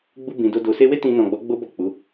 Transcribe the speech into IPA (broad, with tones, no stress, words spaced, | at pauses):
ɡ͡bu˧bĩ˨ do˧ do˨se˧we˦ tĩ˧nɔ̃˨ ɡ͡bɔ˨˦ ɡ͡bo˦bɔ˦˨ k͡pu˨˦